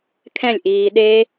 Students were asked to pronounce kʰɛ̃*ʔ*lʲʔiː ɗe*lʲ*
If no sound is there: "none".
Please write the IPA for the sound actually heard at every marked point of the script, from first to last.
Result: none, none

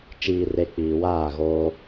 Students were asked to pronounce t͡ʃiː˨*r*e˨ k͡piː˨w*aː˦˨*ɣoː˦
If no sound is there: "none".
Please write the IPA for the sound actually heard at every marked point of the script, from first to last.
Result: r, aː˦˨

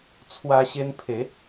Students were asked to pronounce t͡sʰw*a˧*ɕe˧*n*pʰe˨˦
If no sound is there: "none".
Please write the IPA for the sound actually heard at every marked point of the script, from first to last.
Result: a˧, n

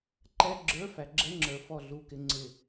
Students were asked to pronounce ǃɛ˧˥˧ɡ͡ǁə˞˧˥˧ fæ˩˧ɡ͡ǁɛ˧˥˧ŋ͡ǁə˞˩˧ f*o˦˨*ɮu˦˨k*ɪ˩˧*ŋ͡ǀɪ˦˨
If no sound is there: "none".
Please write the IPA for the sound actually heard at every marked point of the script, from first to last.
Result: ɔ˦˨, ɪ˧˥˧

